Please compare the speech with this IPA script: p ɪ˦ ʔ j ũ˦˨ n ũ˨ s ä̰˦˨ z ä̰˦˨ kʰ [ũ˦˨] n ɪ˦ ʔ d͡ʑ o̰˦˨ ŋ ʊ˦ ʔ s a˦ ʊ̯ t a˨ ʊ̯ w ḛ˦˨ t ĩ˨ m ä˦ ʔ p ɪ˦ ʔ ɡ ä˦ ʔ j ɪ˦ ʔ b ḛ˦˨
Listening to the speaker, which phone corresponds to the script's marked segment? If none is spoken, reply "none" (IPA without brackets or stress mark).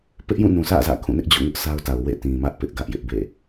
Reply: ũ˦˨